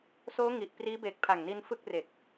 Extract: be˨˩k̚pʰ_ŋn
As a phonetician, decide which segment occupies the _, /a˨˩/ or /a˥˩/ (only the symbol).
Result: a˨˩